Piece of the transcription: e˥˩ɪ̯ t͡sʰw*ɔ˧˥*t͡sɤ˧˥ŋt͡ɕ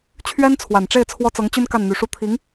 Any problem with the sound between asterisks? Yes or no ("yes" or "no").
yes